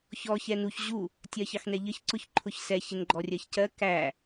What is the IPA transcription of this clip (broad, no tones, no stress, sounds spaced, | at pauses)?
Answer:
ç ɔ ç ɛ n u ç ʑ u | tʲ ɜ ç ɑ x n ɛ ʎ ə ç ǀ ʊ ç ǃʰ ʊ ç s ɛ ç ɪ n ɡ͡ǃ ɔ rʲ ɜ ç c ɜ k æ